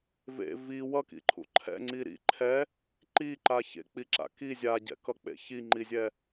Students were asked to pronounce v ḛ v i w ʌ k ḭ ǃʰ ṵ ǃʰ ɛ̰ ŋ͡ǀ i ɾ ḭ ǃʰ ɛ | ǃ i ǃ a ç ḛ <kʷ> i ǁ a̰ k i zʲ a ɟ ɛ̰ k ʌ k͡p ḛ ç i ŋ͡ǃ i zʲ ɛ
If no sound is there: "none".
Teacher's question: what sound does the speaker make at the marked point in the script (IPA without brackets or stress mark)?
k͡p